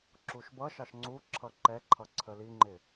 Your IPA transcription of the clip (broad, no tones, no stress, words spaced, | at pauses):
ǁuʃbʌʃɑʃ ŋ͡ǀu ǁʰʌǃɛǃʰʌ ǀʰəliŋ͡ǃɪ